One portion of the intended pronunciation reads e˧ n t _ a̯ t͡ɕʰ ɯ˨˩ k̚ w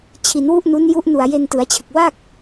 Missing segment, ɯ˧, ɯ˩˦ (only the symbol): ɯ˩˦